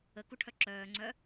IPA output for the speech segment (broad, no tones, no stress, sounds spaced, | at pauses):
ə k u ʈʰ œ ǁ œː ŋ͡ǀ œ